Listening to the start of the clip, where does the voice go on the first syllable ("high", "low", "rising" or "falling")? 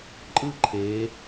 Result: falling